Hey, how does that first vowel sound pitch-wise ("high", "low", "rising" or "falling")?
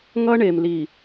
high